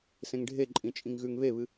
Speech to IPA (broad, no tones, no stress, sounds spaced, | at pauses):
s ẽ ŋ ɖʱ e ǃʼ ĩ t͡ʃʼ ĩ ŋ ɣ ʉ ŋ β e β ɨ